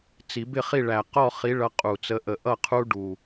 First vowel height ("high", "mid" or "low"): high